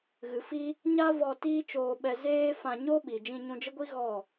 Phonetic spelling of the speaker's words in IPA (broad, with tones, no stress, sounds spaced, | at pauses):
ɣ ɨ˨ f i˦ | ɲ a˦ v ɔ˧ t iː˦ t͡ʃ oː˧ ɓ ɛ˧ z eː˦ f ã˧ ɲ o˦ ɓ i˨ d͡ʒ ĩ˧ ɲ ũ˧ d͡ʒ ə˦ ɡʷ i˦ ɣ ɔ˦˨